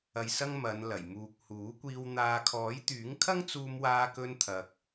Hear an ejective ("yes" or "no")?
no